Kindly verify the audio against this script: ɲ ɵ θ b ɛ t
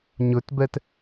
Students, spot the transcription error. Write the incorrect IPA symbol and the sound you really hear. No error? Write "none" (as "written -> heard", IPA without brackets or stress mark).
θ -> t